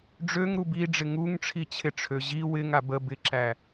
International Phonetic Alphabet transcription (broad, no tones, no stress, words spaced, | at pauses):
ɖ͡ʐøŋɾu biɖ͡ʐɪ ŋuŋʈ͡ʂʰi t͡ɕʰɪʈ͡ʂʰø ʑi wɪŋa bə bɪǁæ